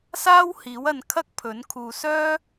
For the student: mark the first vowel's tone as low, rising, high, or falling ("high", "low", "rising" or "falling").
high